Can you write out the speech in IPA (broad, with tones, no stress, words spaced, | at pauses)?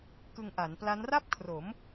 kɯ˧ŋʔa˩˦npla˦˥n ra˥˩p̚kʰro˩˦m